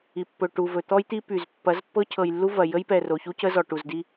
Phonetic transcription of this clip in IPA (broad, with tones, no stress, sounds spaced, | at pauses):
i˨ pː ɵ˨ ʈ u˨ v ɵ˨ t̪ ɔ˦ j t̪ i˦ p y˨ z pː ɐ˨˦ z pː ɤ˦ cʰ ɤ˨ j lː u˦ v ɐ˨ j ə˦ j p ɛ˨ r o˨ ç u˦ c ə˦ z ɔ˨ ʈ u˨ z d i˦